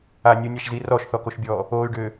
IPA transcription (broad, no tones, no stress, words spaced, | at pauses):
a nʲunʲaʃzi rɔʃθɔkoʃbʲɔː | oːy̯ɖʏː